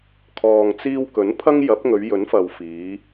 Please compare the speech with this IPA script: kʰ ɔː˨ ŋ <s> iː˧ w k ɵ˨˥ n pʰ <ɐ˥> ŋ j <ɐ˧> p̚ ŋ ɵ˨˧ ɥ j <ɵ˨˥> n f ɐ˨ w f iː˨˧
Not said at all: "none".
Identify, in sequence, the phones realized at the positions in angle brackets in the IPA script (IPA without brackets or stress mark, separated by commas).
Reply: t͡s, ɐ˥, ɐ˨˥, ɵ˨˥